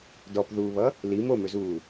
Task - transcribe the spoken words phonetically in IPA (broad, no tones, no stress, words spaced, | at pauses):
dɔpðuːβʌ | li momøzuː